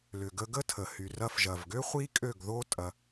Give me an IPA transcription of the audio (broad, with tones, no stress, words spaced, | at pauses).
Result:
lʏ˨ɡə˧ɡə˦tʰə˨ hy˨rɐ˧fʒɐ˨vɡø˦ χʷi˦kʼø˦˨ɡðo˦ tʼɐ˧